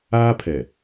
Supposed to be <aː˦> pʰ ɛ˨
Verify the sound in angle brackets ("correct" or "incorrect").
correct